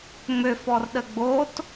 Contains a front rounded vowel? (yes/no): yes